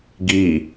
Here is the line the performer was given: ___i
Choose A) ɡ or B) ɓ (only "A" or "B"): A